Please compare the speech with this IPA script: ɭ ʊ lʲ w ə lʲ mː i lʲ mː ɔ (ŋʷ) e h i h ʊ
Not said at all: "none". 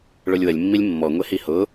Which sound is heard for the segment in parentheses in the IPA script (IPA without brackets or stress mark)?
ŋʷ